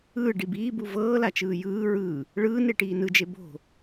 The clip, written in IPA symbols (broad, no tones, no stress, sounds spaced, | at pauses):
ɯː ɖ i b iː b u v ɤː l a t͡ʃ ɯː j ɯː ɹ ɯː | ɭ ɯː n e ʈ iː n ɯ d͡ʒ e b o̤